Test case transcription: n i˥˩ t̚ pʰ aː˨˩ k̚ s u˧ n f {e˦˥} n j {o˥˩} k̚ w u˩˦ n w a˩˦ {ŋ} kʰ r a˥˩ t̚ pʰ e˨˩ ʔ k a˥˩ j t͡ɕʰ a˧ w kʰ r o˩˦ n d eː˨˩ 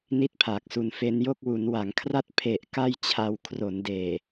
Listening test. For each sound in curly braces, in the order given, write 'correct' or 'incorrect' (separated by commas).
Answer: correct, correct, correct